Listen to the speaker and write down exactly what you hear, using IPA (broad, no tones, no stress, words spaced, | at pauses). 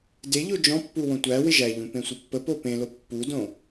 deʎo d͡ʒɔ̃pːu wõtʷæwɪ ʒæʎũ pẽsʷəpːəpo pẽlo pːudõ